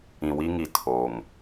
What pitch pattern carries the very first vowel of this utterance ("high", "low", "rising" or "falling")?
low